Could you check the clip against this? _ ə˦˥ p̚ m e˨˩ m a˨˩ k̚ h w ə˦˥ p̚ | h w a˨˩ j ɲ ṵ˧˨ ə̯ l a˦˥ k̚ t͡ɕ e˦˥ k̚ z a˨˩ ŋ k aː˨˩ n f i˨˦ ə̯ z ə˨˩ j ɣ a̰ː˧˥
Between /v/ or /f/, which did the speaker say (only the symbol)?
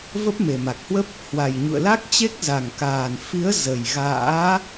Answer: v